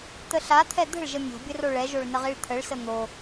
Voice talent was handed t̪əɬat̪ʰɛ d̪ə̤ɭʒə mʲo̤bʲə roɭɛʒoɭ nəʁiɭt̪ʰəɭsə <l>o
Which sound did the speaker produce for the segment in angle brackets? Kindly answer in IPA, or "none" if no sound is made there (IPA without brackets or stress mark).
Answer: n̪